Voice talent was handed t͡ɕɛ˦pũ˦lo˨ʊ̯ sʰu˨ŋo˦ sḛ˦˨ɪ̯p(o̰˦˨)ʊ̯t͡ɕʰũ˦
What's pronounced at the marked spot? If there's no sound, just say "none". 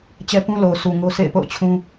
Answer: o̰˦˨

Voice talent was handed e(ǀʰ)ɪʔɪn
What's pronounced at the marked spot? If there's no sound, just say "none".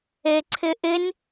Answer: ǀʰ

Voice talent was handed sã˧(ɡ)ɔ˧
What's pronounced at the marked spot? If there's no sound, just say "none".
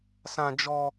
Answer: d͡ʒ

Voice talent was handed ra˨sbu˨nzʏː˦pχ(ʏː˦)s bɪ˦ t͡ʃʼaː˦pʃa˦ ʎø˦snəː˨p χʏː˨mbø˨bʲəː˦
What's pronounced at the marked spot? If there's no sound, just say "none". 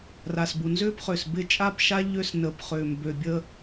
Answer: ʏː˨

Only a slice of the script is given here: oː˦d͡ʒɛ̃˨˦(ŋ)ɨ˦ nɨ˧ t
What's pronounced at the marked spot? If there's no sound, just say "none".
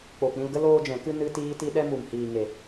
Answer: k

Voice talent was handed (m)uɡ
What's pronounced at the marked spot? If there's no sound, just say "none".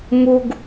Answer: m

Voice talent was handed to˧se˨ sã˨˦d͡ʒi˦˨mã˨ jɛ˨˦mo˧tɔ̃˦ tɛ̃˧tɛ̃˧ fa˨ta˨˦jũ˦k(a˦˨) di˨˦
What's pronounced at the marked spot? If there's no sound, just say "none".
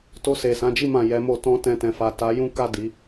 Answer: a˦˨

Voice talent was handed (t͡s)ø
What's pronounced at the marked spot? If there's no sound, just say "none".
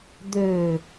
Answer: d̪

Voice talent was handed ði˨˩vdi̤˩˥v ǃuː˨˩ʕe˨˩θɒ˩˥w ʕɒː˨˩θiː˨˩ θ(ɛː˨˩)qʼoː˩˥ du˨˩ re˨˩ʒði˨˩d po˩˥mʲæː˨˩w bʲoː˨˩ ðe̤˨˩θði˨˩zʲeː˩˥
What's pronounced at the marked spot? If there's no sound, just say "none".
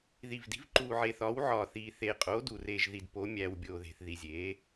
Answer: eː˨˩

